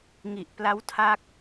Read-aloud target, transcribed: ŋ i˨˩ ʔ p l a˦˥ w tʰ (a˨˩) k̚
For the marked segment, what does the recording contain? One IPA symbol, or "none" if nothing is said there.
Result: a˦˥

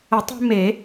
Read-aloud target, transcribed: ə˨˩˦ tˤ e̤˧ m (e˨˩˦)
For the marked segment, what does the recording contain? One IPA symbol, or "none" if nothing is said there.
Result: e˨˩˦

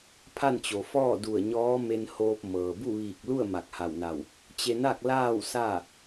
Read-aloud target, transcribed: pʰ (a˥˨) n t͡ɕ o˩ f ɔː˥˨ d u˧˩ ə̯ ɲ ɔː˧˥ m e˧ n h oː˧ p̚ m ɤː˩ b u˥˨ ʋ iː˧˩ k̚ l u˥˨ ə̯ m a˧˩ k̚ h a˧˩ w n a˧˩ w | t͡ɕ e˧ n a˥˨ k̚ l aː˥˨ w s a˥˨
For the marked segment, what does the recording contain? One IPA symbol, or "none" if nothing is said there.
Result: a˥˨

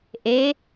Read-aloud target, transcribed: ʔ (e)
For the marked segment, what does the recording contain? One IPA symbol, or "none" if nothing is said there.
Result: e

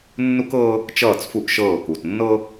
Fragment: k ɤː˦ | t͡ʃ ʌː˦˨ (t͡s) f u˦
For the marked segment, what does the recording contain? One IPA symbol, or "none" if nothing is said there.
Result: t͡s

